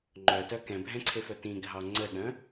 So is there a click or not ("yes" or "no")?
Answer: yes